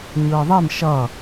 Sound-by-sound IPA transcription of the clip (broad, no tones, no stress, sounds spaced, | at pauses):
ɲ ɯː ðˤ e m ʃ ʌ